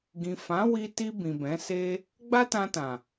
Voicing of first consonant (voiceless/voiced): voiced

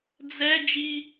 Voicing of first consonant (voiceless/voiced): voiced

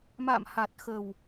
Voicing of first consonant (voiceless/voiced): voiced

